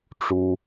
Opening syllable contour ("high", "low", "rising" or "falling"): high